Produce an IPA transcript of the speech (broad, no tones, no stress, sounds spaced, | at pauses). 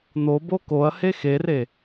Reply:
n̪ o b o k o ɐ̯ h e x e r e